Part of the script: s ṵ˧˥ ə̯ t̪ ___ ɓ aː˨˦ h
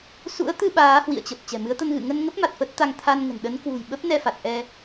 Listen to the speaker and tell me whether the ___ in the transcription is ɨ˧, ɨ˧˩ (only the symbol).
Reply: ɨ˧